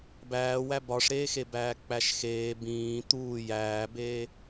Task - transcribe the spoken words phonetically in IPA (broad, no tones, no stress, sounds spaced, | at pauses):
b æː w æ b ɒ ʂ ɾ eː x e b æː k͡p æ ʃ x eː b ĩː t̪ uː j æː b eː